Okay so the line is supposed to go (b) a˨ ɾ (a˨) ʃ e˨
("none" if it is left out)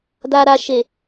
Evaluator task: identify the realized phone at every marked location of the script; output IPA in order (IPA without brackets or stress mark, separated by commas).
d, a˨